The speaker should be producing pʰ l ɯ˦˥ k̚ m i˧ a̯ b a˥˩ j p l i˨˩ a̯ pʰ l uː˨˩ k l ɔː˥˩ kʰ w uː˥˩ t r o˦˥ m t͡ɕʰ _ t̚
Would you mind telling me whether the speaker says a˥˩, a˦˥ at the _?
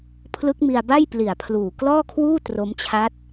a˦˥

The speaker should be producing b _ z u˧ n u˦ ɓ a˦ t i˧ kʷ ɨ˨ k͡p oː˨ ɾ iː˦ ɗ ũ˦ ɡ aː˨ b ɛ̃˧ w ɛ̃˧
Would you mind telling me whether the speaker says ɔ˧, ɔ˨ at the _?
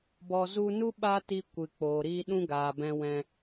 ɔ˨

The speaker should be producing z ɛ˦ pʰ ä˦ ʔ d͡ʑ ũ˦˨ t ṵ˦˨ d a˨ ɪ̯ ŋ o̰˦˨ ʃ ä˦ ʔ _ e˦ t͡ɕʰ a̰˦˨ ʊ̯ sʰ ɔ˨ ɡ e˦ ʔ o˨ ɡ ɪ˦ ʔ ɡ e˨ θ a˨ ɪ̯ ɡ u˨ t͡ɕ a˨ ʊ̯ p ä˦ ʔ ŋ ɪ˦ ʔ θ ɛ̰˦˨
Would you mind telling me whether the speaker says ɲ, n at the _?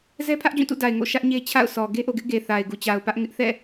ɲ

